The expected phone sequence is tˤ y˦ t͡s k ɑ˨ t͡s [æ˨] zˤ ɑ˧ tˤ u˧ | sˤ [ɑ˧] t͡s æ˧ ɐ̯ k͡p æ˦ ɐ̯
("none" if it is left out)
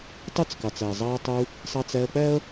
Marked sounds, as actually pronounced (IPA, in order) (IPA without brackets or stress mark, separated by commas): æ˨, ɑ˧